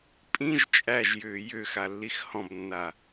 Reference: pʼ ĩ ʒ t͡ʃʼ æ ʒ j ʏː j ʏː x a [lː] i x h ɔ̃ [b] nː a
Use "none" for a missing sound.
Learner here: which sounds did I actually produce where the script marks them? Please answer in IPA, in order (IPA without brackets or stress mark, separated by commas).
lː, b